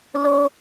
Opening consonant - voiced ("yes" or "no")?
yes